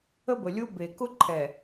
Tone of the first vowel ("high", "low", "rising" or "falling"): high